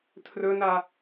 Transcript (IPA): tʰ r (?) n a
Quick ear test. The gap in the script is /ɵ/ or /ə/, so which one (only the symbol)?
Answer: ɵ